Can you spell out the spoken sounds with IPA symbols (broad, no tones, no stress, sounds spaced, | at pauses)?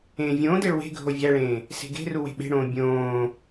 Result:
ẽː vʲ õː d e ɭ w e̤ ɡʱ o vʲ æ ɭ ẽː | s e̤ ɡ e̤ r u w e̤ ɓ e̤ ɽ õː bʲ õː